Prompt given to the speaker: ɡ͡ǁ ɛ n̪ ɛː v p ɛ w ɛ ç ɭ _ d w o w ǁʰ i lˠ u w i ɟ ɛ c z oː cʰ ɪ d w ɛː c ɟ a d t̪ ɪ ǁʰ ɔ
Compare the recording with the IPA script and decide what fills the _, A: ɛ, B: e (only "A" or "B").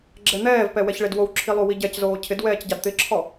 B